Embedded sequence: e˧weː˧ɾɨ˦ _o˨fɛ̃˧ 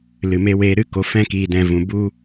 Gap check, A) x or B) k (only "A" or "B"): B